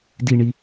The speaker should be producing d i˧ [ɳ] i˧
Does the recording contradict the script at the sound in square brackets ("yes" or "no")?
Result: no